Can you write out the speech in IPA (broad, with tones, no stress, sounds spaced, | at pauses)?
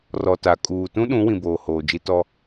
r ɔ˨ t a˨ kʼ uː˨ t ũ˦ ɗ ũ˨˦ w ĩ˨ b oː˨ h oː˨ d͡ʒ i˦ t ɔ˦